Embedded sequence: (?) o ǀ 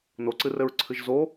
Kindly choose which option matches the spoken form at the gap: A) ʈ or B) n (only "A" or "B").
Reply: B